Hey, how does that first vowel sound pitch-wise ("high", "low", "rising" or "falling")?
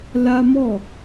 high